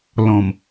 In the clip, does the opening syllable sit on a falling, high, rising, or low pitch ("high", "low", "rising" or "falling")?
low